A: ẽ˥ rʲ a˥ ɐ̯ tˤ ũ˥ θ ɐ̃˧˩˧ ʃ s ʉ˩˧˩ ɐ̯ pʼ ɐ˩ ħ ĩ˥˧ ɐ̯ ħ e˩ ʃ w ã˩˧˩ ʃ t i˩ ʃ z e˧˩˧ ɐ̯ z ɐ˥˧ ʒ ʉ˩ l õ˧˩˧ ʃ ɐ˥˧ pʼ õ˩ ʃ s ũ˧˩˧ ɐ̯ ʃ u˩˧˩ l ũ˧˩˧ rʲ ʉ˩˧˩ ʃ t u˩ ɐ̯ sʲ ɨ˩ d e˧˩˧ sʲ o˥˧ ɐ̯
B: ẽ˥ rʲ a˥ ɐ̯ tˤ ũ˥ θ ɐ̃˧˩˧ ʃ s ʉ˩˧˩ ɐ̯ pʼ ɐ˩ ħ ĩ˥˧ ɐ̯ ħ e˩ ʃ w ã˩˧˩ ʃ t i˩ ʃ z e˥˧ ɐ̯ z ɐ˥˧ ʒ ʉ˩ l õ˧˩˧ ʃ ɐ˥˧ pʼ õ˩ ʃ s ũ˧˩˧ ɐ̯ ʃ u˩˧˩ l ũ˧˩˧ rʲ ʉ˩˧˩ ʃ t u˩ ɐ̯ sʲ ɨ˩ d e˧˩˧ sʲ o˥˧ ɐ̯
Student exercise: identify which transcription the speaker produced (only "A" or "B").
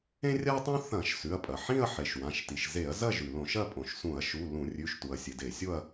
A